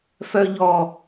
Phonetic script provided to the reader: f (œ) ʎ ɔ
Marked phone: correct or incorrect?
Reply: correct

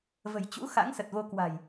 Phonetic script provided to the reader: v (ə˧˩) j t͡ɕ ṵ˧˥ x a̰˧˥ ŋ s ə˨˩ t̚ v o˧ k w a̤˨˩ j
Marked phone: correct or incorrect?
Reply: incorrect: ə̤˨˩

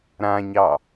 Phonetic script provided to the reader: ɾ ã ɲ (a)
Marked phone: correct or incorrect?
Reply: incorrect: ɑ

